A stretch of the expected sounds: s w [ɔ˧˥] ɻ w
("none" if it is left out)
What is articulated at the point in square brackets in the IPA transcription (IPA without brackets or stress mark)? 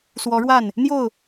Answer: ɔ˧˥